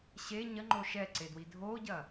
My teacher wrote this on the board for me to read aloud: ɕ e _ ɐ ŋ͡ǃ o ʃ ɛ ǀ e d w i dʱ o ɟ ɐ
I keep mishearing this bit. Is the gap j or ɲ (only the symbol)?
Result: ɲ